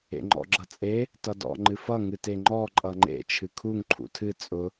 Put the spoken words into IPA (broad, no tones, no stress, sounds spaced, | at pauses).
ḛ ŋ͡ǃ ɔ̰ ɡ͡ǁ ʌ t͡sʼ e | t ʌ d ɔ̰ ŋ͡ǃ ɨ f ʌ ŋ ɨ t e ŋ͡ǃ ɔ ǃʼ ʌ ŋ͡ǃ ḛ t͡ʃʰ ɨ kʰ u ŋ ǃʰ ṵ tʰ ɨ t͡sʼ ʊ